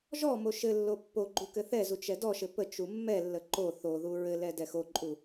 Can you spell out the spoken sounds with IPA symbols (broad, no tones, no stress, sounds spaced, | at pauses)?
ʒ ɔ m o ʃ ɘ lː o pː o ɡ͡ǃ u k ɘ θ ɛ z u t͡ʃ ɛ d ɔ ʃ ɘ p ə t͡ʃ u mː ɛ lː ə ǃ o θ o ð u ɹ ɘ l ɛ d ɛ x o ǃʼ u